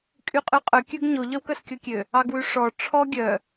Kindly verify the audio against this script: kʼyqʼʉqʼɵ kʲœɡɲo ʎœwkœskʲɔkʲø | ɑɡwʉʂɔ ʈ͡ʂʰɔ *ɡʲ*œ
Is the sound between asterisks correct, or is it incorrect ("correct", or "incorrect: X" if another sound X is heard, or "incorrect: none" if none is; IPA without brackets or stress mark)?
correct